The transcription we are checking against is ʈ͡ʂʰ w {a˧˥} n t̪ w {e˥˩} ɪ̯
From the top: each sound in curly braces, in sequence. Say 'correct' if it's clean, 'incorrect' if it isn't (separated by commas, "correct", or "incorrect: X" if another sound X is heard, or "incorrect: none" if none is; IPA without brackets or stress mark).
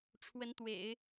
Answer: incorrect: ə˧˥, incorrect: ḛ˨˩˦